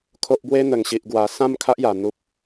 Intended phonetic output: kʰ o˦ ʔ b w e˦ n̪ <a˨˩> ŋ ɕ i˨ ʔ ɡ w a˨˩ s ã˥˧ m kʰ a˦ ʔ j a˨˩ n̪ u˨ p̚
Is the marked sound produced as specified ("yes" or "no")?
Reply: no